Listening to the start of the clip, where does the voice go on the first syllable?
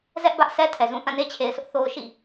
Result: high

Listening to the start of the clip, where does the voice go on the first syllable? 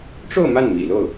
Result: falling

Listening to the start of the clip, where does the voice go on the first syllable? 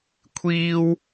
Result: high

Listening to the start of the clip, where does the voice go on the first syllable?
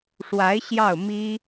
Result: rising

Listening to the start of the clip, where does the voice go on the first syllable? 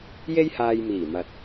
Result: high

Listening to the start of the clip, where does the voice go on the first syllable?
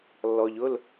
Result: low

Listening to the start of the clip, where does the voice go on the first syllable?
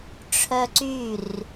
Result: high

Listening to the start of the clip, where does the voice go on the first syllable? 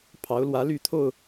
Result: rising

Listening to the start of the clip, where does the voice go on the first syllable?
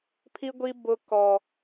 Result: high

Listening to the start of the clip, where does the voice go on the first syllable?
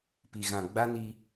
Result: low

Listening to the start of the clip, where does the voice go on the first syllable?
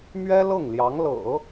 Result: high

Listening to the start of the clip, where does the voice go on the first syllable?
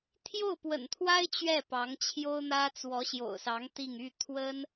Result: falling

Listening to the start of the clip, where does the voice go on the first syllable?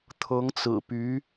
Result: rising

